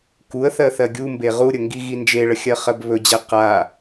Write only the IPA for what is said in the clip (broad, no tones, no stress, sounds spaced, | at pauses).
k u ə̯ θ ɜ θ ɜ ɡʲ u m b e ʁ u ɾʲ ə ŋ ɡ i ɣ i n d͡ʒ e ɭ ə xʲ ɜ χ ɜ b β ɵ d͡ʑ ɛ q a